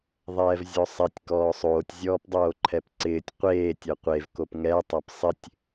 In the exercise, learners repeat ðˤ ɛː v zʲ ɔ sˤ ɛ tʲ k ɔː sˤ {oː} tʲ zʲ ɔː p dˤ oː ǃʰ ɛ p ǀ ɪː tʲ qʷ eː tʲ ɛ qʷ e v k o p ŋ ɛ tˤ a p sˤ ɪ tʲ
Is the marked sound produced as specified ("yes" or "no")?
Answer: yes